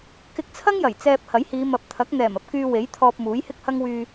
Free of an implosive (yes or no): yes